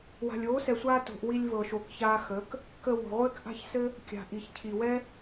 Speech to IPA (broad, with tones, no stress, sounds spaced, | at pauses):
w a̤˨ lʲ oː˨˦ s ɛ˨ sʷ aː˧ t o̤˨ ʔ w i˧ lʲ v ɤ˨ ʃ o˨ k ç aː˧ x ə˨˦ k | k ə˧ w o̤˨ ʁʷ ɘː˦ k ʔ a̤˦ ç s ɘ˦ | kʲ a̤˨ ʔ i˨ ç cʰ i˨ w ɛ˦